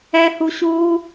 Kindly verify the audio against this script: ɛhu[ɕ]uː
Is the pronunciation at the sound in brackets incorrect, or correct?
correct